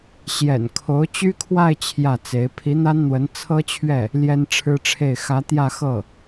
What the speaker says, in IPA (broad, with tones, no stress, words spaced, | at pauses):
ɕjɛ̰˨˩n kʰo˧˥ʊ̯t͡ɕy˥kʰwa˥˧ɪ̯ t͡ɕʰjä˥˩t͡se˧˥ɪ̯ pʰi˧˥n̪a˥nn̪wə˧˥n t͡sʰɤ˥t͡ɕʰɥɛ˥˩ | ljɛ˥nʈ͡ʂʰɻ̩˥ʈ͡ʂʰe˥˩ɪ̯ xä˧˥ t̪jä˥˧xɤ˥˩